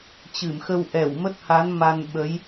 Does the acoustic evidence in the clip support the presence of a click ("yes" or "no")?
no